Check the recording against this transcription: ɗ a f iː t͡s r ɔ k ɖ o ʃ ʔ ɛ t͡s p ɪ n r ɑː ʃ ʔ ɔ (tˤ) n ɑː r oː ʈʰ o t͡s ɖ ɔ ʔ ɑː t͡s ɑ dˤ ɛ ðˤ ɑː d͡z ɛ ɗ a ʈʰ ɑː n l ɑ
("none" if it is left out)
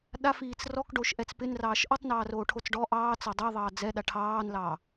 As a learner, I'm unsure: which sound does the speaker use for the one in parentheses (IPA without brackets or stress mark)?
tˤ